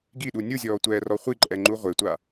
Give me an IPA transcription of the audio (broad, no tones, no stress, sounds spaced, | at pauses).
ɡ i ɗ u nʲ u zʲ ɔː tʷ ɛː r ɔ χʷ i ǃʼ ɛ ŋ͡ǃ u ʁʷ e tʷ a